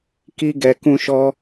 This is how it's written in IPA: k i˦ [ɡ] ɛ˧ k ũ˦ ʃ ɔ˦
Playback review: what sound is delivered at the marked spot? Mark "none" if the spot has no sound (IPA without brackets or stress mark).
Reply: ɡ